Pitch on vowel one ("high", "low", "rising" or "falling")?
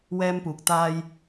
high